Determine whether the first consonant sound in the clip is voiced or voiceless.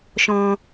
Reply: voiceless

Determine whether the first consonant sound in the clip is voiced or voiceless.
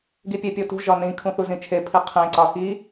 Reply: voiced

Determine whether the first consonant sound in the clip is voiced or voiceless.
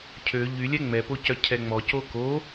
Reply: voiceless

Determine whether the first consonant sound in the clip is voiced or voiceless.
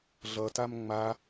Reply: voiced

